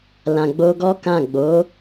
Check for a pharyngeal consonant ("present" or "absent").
absent